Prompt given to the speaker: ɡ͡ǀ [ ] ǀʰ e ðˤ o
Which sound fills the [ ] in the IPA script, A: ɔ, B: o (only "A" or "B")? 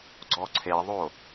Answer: A